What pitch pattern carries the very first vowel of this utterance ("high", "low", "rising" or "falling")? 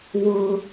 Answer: high